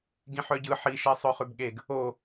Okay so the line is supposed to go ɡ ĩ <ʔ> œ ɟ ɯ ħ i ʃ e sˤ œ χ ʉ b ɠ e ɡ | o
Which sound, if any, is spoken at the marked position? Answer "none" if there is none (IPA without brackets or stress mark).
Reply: ħ